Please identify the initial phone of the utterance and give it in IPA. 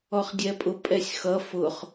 ɔ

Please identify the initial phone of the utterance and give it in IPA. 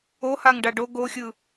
o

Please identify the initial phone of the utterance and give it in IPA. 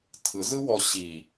tʰ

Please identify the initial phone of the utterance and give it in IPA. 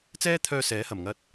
t͡s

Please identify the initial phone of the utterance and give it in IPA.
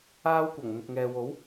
aː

